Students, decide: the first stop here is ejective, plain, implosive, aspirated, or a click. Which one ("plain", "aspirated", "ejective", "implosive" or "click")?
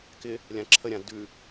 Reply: plain